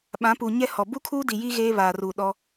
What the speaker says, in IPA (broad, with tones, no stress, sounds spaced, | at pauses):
ɓ ã˨˦ p u˨ ɲ ɛ˦ h ɔ˨ b u˦ kʰ uː˦ d i˨ j i˦ ɣ eː˦ β aː˨ r uː˨ ɗ ɔ˦